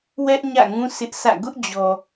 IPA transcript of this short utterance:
w ɛ˦ ʔ ɲ ä̰˦˨ ŋ ũ˦ sʰ ɪ˦ ʔ sʰ ä̰˦˨ ɡ ʊ˦ ʔ d͡ʑ ɔ˨

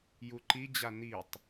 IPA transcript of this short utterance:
j u ǃ i d͡ʑ a n i tˤ

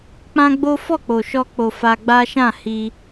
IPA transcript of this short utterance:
k͡p ã˦ ɡ͡b o˦ f ɔ˦˨ k͡p o˨ ʃ ɔ˧ k͡p o˨ f a˧ ɡ͡b a˦ ʃ ã˦˨ h i˧

